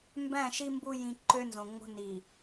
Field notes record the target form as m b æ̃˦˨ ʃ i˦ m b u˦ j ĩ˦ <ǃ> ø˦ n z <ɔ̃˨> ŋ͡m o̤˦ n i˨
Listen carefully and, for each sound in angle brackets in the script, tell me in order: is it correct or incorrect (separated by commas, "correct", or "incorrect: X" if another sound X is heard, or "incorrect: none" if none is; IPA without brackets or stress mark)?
correct, incorrect: õ˨